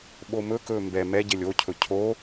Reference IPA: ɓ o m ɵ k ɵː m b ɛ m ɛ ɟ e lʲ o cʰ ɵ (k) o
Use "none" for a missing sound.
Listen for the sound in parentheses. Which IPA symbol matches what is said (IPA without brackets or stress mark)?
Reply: cʰ